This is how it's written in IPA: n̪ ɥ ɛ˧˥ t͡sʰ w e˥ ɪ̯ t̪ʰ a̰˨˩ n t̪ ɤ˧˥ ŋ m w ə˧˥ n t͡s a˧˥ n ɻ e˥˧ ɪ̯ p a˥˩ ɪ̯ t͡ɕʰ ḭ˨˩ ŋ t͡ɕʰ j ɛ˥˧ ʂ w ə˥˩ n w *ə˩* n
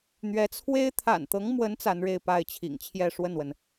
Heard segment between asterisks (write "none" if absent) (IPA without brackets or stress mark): ə˩